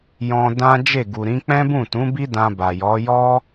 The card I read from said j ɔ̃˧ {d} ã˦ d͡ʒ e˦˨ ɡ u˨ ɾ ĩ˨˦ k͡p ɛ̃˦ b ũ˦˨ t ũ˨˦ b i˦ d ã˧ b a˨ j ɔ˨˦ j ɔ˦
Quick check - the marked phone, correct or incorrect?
correct